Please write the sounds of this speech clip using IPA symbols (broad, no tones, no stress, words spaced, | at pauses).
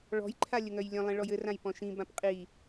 ɭɔ̤jǃʰa lʲɘŋœjlʲœ̃lˠĩ ɭɔjɘ rãjpɔ̃ʃĩ bãpqʼi